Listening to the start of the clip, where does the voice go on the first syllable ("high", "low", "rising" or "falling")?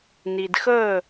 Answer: low